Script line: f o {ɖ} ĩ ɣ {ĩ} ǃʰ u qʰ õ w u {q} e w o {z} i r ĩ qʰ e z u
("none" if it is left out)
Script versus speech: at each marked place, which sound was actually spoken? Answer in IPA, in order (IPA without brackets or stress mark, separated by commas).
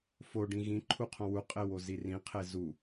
ɖ, ĩ, qʼ, z